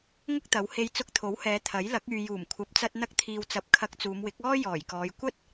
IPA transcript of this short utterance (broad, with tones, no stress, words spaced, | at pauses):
ŋʊ˥k̚t̪ɐ˨˧whe˧j t͡sʊ˧k̚t̪ʰo˨˥whɛː˨˧ t̪ʰɐ˨˥jlɐ˨˥k̚ yː˨juː˨˩mkʷʰɐ˨˥p̚t͡sɐ˧t̚ n̪ɐ˧k̚t̪ʰiː˨wt͡sɐ˨p̚ kʰɐ˧k̚t͡suː˨˧mwɪ˨˥k̚ ɔː˥ jɔː˨˩jkɔː˨˧j kʷɐ˥t̚